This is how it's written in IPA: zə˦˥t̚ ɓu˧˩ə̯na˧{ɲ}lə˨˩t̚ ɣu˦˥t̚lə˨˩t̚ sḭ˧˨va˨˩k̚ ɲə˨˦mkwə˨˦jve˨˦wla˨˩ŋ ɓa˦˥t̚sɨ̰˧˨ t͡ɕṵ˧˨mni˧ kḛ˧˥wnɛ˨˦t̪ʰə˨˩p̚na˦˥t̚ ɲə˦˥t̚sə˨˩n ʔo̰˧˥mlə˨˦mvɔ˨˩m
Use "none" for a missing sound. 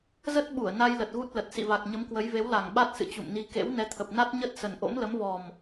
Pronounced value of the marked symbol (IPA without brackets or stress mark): j